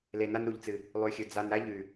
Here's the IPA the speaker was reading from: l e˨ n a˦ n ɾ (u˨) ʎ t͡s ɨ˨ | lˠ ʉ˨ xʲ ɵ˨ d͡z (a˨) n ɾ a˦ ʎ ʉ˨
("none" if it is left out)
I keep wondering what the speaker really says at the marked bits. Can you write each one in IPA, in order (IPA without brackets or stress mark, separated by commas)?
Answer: u˨, a˨